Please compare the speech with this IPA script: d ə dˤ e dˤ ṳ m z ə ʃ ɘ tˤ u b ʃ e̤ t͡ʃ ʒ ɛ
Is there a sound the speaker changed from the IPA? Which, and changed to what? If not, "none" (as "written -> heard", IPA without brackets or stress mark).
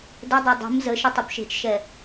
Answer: ʒ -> ʃ